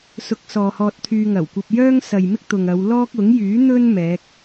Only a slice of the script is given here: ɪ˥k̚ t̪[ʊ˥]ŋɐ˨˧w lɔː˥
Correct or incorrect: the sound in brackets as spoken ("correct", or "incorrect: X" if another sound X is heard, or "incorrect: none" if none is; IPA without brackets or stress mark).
incorrect: ʊ˨